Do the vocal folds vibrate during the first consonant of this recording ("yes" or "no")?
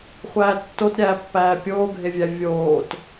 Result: no